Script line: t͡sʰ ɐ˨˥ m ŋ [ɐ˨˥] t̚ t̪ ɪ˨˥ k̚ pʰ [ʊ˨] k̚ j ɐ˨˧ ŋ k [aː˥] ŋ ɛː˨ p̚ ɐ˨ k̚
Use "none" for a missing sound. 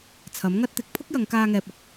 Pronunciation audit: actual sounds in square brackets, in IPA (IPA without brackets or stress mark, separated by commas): ɐ˥, ʊ˥, aː˧